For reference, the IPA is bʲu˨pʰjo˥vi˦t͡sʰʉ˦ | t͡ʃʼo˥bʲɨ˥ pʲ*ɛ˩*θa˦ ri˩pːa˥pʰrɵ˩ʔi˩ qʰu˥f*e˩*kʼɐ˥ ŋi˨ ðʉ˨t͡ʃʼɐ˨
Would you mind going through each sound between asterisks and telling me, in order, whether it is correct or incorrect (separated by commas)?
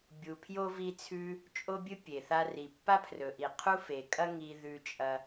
incorrect, correct